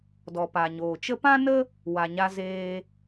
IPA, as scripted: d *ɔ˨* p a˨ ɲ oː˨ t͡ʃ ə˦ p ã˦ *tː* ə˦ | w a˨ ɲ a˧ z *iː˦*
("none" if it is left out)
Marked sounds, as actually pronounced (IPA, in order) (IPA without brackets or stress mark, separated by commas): ɔ˨, n, eː˦